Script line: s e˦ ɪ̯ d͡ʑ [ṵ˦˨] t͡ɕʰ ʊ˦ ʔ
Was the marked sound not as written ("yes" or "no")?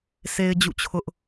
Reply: no